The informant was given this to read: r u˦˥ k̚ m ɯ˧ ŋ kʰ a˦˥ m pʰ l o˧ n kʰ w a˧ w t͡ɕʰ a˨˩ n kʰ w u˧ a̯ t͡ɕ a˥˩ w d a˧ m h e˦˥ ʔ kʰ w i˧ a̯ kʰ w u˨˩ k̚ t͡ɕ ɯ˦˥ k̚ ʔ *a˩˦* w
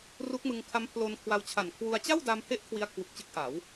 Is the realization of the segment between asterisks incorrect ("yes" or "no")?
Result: no